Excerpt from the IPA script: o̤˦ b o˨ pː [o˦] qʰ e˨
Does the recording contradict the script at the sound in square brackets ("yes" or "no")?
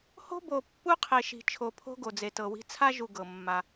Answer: yes